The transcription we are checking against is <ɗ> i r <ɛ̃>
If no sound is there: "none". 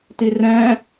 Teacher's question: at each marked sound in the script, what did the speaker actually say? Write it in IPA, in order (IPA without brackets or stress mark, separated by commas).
t, ɛ̃ː